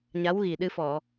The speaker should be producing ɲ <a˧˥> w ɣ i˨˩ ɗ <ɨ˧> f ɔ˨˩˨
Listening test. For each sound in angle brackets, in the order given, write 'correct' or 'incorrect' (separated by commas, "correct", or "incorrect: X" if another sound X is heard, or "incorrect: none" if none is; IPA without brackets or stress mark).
correct, correct